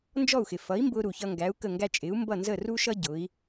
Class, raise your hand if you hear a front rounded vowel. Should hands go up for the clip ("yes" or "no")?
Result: no